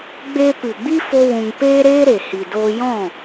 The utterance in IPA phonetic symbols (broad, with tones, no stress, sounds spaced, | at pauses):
ɡ͡b e˧ p ɨ˨ ɡ͡b i˦ f o˦ w ũ˧ ŋ p eː˦ ɾ eː˦ ɾ e˨ h i˨ d oː˧ j ɔ̃˦˨